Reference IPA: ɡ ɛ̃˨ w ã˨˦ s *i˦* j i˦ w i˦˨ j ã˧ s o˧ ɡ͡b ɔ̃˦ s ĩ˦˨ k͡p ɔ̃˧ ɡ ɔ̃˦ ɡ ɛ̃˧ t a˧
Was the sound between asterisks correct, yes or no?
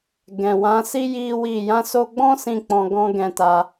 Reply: yes